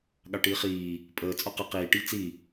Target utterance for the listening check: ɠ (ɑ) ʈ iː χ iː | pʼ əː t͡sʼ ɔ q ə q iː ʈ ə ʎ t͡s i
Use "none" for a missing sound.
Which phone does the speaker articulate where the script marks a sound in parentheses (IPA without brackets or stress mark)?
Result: ɑ